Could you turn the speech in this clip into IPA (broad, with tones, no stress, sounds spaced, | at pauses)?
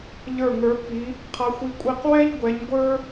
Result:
ʎ ə˞˦˨ ŋ ə˞˧˥ pː i˧˥ | qʰ a˧˥ xʷ i˧˥ kʷʼ i˦˨ q w ɛ˥ ʎ ɡʷ ɛ˧˥ ɲ ɡʷ ə˞˥